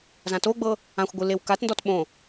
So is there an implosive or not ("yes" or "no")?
yes